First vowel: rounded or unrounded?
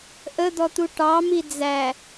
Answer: unrounded